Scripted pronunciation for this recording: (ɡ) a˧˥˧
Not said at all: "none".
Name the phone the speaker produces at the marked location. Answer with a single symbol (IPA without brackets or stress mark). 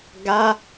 ɡ